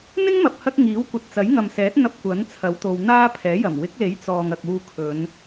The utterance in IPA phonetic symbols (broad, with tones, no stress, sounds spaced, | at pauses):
n̪ ɪ˥ ŋ m ɐ˨ p̚ h ɐ˧ k̚ ŋ iː˨˥ w kʷ ɐ˨ t̚ t͡s ɐ˨˥ j ŋ ɐ˨ m s ɛː˨˥ t̚ n̪ ɐ˧ p̚ kʷ ɐ˨˥ n t͡sʰ ɐ˨˥ w t̪ o˧ w n̪ aː˥ pʰ ɛː˨˥ j ɐ˨˩ m w ɪ˨˥ k̚ l e˨˥ j t͡s ɔː˨ ŋ ɐ˨ k̚ uː˧ kʰ ɵ˨˧ n